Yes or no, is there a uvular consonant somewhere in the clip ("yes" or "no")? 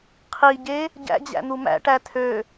yes